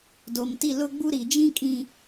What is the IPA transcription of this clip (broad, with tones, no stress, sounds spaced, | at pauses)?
d oː˨ m t i˦˨ l ʊ˦ ɡ͡b u˦ ɾ i˨ d͡ʒ ĩ˦ kʼ ĩ˨